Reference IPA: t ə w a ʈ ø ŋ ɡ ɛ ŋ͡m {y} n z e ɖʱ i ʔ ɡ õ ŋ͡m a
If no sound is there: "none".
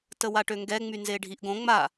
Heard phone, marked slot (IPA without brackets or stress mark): y